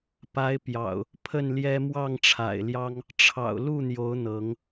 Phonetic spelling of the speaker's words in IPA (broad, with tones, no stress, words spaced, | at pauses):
pa˨˦ɪ̯ pjɑ̰˨˩ʊ̯ | pʰə˥˨nljɛ˦ mwɑ˥˨ŋʈ͡ʂʰa̰˨˩ɪ̯ljɑ˦ŋ | ʈ͡ʂʰɑ̰˨˩ʊ̯lu˥˨n̪jo˨˦ʊ̯ n̪ɤ˨˦ŋ